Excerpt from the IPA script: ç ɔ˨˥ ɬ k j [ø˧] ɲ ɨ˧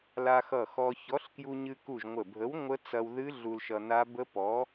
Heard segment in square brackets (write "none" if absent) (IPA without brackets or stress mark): u˧